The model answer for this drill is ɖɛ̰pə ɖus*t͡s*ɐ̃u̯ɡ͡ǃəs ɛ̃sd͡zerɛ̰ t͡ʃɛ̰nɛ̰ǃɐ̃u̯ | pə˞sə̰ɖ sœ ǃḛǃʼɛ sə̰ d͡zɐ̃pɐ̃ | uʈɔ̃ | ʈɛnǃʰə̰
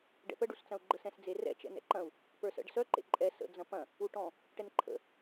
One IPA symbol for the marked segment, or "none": t͡s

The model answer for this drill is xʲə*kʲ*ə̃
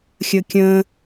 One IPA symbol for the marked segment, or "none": kʲ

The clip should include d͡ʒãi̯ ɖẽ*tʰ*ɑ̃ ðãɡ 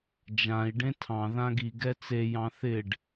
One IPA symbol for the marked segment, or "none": tʰ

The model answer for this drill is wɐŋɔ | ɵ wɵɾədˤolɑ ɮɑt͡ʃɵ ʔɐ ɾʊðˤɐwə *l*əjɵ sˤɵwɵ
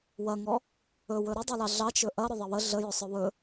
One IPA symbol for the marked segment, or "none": ɮ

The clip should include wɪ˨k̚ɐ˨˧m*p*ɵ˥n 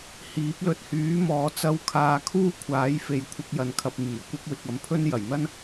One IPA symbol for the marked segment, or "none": pʰ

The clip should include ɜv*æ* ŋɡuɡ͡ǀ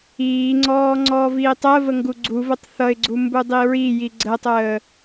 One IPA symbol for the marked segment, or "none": ə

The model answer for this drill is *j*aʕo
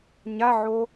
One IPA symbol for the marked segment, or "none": ɲ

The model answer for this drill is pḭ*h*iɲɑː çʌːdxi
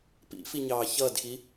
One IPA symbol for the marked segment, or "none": f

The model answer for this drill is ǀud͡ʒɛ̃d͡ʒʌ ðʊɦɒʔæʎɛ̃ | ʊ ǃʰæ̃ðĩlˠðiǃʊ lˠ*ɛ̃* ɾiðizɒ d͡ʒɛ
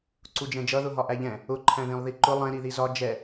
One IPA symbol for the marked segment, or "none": ɛ̃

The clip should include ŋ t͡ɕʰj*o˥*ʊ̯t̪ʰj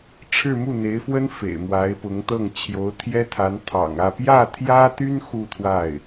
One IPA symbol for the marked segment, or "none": o˧˥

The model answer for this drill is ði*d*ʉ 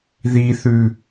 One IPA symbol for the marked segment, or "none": θ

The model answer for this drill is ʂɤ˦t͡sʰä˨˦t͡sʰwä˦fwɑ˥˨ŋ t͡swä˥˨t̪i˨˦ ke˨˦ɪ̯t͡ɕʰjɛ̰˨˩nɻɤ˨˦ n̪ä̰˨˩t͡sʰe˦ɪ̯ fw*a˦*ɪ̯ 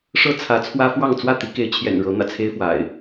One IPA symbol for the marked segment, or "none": a̰˨˩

